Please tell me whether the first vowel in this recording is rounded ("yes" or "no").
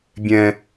no